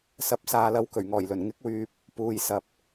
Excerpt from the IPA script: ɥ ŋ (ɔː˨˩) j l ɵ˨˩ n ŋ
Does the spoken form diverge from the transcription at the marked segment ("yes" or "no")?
no